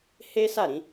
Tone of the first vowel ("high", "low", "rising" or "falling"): high